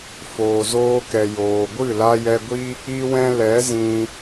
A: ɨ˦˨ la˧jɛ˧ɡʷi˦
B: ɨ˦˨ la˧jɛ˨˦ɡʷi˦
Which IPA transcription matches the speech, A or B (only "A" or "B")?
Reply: A